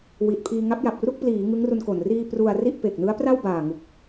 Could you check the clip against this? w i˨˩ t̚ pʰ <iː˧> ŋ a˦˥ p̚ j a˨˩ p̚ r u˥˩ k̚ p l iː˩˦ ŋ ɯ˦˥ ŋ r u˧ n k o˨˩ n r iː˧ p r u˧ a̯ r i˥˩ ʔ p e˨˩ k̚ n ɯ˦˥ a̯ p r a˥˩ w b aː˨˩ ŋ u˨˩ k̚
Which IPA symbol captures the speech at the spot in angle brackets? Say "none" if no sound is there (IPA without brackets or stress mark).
iː˧